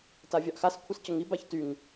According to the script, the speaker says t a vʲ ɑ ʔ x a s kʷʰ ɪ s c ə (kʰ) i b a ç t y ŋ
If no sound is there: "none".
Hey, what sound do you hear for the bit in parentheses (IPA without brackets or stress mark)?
ŋ